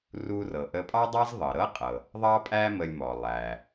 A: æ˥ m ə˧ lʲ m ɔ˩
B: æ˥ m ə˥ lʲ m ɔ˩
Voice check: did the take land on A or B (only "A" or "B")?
A